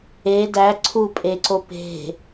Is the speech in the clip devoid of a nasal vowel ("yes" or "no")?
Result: yes